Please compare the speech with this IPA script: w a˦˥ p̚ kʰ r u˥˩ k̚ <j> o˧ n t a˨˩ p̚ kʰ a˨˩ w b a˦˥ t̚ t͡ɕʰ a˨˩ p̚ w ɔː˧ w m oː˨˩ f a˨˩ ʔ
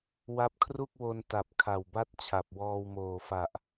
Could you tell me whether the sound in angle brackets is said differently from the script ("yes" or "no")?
yes